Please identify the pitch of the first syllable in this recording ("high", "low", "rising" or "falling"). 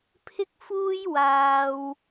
high